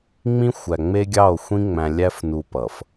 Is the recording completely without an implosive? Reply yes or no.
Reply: yes